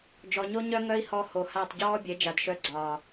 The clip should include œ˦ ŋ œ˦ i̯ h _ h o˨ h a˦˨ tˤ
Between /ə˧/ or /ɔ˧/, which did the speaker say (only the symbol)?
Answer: ɔ˧